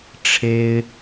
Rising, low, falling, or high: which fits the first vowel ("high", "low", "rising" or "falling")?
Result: high